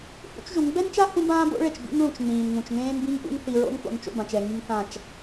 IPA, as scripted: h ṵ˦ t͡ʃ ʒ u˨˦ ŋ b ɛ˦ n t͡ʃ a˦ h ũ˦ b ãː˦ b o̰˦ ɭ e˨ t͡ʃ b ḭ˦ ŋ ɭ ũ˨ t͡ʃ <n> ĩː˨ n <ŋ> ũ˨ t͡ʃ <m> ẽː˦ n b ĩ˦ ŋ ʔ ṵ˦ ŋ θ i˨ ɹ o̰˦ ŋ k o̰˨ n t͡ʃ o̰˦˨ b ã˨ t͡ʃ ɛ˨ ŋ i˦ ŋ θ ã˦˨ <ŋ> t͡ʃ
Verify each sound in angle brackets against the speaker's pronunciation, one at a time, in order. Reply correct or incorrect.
correct, correct, incorrect: ŋ, incorrect: none

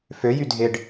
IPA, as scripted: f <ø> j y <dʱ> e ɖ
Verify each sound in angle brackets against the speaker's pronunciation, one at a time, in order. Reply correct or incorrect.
correct, correct

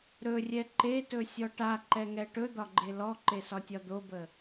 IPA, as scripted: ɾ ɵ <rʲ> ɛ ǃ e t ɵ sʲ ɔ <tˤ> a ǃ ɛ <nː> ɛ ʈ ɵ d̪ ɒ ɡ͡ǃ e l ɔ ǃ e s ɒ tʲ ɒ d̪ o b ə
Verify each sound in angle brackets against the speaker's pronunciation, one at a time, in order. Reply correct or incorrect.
correct, incorrect: ʈ, incorrect: ŋ

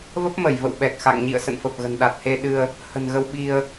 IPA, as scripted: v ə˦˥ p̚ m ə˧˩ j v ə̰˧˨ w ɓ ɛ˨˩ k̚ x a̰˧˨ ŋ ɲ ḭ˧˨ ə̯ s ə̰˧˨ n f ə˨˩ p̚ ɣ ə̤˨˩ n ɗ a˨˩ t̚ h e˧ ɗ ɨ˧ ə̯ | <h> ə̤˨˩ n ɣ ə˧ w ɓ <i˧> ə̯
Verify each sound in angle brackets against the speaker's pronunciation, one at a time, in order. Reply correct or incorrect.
correct, correct

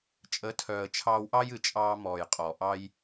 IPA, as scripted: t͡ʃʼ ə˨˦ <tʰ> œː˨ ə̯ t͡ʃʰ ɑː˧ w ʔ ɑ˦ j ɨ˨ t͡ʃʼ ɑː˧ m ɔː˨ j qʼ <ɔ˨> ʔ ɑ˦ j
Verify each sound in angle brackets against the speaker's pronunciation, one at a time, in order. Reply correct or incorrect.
correct, correct

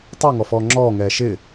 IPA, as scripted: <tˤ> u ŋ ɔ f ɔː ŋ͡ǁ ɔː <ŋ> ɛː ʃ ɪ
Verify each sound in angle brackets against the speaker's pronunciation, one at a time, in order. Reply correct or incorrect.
correct, correct

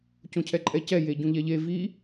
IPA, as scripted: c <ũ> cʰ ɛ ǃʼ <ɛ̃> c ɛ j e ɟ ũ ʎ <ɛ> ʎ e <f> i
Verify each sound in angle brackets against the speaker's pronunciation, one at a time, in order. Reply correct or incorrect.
incorrect: õ, incorrect: ɛ, correct, incorrect: v

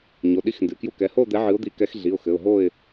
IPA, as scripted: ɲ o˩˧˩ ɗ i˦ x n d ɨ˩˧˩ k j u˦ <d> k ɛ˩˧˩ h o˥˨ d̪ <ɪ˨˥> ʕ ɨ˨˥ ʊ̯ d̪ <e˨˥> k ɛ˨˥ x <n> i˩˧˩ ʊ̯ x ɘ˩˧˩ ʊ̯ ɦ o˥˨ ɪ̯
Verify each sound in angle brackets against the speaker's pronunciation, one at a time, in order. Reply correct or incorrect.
incorrect: none, incorrect: ɛ˨˥, incorrect: i˨˥, incorrect: ɮ

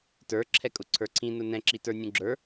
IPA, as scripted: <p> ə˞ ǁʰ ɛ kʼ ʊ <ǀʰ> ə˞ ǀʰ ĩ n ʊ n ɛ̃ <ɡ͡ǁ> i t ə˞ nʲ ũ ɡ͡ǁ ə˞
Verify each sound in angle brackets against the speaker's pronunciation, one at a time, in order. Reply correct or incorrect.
incorrect: t, correct, incorrect: ǁ

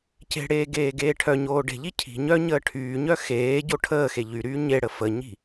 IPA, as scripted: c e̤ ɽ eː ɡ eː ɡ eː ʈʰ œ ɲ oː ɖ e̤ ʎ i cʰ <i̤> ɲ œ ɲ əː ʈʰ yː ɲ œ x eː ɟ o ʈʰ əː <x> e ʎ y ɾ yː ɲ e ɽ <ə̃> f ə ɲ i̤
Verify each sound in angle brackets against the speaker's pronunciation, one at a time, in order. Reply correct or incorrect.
correct, correct, incorrect: ə

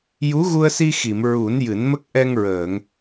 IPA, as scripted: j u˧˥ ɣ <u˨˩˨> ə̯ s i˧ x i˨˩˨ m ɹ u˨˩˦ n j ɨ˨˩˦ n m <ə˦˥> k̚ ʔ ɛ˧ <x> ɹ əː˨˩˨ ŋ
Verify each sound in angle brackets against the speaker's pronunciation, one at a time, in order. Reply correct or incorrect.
incorrect: u˧, correct, incorrect: ŋ

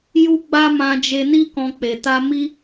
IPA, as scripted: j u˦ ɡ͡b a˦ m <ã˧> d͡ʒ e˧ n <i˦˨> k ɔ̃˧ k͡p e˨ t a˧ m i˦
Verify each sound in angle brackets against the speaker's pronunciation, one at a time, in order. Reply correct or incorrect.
correct, incorrect: i˦

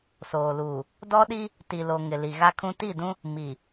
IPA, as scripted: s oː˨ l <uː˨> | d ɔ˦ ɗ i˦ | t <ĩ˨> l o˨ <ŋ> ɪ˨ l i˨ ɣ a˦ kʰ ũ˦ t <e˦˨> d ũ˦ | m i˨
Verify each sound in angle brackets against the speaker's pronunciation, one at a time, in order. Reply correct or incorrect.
correct, incorrect: i˨, correct, incorrect: i˦˨

